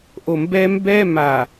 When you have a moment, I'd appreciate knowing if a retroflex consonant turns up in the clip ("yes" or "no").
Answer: no